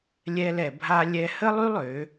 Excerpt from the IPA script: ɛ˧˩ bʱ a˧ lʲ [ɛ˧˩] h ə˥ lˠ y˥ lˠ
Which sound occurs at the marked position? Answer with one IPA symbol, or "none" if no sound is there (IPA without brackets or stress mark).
ɛ˧